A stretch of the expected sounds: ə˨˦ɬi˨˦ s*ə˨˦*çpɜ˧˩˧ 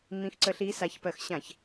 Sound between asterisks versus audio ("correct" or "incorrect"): incorrect